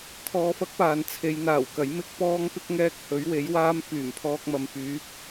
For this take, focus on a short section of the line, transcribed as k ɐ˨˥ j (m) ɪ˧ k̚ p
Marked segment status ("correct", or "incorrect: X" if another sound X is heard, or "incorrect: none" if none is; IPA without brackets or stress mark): correct